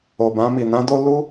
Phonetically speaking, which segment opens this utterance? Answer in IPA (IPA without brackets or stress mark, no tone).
o